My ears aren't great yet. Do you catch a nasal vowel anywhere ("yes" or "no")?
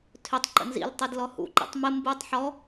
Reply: no